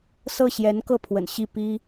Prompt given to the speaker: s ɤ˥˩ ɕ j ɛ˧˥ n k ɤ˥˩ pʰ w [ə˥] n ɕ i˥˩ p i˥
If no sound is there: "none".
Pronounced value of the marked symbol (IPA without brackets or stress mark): ə̰˨˩